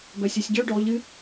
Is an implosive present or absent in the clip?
absent